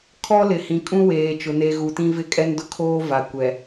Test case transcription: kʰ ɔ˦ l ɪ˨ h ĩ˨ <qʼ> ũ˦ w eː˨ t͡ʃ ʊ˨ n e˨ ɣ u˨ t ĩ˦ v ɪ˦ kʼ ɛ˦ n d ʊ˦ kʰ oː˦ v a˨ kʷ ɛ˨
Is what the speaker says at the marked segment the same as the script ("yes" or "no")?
no